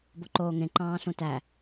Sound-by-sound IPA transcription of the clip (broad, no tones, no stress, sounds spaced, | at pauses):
b o ǃ oː ŋ ẽ ǃ ɑ̃ː ɬ ũ t æ